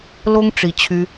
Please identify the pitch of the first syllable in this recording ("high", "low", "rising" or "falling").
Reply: high